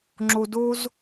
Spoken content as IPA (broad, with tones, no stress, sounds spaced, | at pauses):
ŋ͡ǁ o˧ d o˦ z